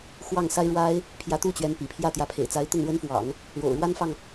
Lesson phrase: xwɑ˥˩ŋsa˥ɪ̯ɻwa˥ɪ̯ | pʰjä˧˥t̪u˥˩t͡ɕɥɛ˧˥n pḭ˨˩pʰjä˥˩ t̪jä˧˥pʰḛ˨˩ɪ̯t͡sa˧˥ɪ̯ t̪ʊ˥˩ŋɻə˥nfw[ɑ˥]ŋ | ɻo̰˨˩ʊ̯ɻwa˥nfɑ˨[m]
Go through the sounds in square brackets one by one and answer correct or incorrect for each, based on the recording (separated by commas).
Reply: incorrect, incorrect